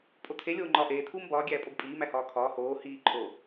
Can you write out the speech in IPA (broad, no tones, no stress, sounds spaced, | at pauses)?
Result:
pʼ o tʰ e lʲ oː ŋ͡ǃ ɒ ʔ eː tʰ uː m b ɒː ɡʲ æː pʼ o b pʼ iː m æ h ɒː kʰ ɒː h oː h iː ǃʰ o